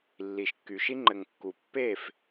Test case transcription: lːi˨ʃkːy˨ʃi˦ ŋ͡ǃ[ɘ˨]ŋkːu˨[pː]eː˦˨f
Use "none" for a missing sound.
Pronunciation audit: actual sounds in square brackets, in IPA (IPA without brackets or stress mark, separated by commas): ɘ˨, pː